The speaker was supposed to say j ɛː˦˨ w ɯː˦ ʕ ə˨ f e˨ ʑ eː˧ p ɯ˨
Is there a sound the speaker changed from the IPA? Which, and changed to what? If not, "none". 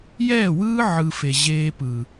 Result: ə˨ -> ɯ˨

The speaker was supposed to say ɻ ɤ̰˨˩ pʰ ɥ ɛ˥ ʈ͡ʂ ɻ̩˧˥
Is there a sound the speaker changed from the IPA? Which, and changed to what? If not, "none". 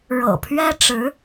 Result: none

